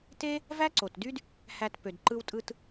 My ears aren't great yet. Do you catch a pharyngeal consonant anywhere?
no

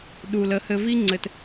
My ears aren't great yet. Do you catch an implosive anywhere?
yes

